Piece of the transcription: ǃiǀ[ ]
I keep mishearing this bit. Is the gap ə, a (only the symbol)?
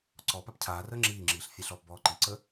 ə